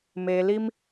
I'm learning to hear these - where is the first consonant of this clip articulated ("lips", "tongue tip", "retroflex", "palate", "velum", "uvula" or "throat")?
lips